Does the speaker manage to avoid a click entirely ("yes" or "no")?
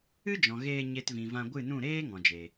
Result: yes